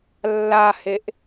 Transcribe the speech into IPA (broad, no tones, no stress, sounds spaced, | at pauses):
lː a h e ʔ